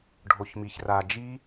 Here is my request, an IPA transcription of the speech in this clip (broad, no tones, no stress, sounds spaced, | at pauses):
ɖʱ o ç m i ç r a d͡ʒ i